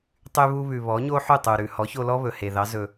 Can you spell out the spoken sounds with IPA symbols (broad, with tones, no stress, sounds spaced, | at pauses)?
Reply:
tˤ y˧ β u˧ β ʉ˩ β ɔ˩˥ ɲ o˥ ħ ʉ˥˩ tˤ u˩ ɾ ʉ˩ h ɔ˩˥ ç o˧ l ɔ˥ β ɵ˩ h e˩ ð ɑ˩˥ z ɵ˩